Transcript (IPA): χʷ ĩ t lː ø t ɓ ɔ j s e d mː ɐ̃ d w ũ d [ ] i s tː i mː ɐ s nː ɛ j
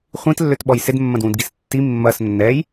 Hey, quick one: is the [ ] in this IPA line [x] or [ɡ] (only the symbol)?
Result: ɡ